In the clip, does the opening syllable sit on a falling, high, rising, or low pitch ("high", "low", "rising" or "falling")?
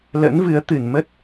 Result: rising